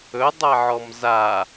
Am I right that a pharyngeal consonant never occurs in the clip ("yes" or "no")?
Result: no